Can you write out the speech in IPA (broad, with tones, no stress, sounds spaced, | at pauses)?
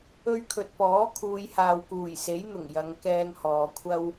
ɵ˥ ɥ kʰ ɵ˧ t̚ p ɔː˨˥ kʰ uː˨˧ j h aː˨ w k uː˨˩ j s e˨˥ j n̪ ʊ˨˩ ŋ j ɐ˨˧ ŋ k ɛː˧ ŋ h ɔː˨ kʷʰ ɐ˥ w